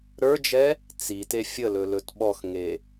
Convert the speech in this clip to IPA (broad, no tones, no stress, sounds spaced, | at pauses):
ɾ ə˞ d͡ʒ ɛ | t͡s i t e fʲ ə l ɵ l ɵ t ɓ ɔ x ŋ e